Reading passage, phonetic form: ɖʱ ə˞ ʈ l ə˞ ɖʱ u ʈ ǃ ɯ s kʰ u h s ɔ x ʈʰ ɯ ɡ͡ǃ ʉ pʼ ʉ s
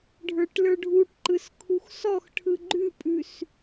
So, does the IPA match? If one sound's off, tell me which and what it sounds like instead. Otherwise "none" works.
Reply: h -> x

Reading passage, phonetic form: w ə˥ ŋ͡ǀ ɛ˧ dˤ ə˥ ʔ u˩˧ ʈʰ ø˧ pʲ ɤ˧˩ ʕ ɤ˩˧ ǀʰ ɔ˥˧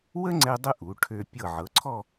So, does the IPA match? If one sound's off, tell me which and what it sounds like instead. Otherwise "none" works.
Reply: none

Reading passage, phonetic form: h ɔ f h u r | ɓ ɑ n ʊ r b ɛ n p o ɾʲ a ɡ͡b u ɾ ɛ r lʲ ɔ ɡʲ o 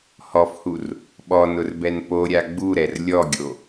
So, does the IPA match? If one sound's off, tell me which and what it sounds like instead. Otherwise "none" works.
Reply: ɑ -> ɔ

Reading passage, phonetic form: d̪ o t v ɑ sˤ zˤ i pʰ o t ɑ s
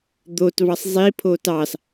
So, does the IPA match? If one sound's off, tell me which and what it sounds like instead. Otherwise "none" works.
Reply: none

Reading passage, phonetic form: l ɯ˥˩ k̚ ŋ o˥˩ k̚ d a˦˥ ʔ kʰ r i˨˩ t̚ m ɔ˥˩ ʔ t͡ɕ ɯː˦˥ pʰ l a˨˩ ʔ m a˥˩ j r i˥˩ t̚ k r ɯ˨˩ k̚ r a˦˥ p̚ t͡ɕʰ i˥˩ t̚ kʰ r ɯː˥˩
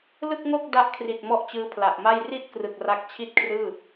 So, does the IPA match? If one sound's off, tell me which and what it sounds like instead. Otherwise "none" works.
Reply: p̚ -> k̚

